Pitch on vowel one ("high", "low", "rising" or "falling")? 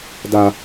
high